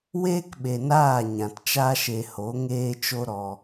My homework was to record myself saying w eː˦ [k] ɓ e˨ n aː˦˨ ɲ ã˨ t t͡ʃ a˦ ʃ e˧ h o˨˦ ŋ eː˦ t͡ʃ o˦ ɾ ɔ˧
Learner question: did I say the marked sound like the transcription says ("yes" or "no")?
yes